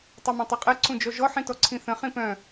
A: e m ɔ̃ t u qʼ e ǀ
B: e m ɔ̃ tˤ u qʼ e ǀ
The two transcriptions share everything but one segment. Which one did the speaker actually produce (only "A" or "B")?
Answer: B